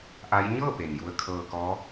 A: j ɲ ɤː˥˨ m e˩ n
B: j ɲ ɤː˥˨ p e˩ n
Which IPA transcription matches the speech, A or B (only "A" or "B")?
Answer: B